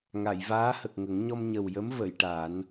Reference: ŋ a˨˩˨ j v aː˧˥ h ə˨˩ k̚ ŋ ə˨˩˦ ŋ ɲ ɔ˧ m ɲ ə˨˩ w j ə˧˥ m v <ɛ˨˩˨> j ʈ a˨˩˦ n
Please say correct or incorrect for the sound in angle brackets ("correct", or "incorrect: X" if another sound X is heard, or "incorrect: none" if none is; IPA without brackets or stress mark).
incorrect: ə˨˩˨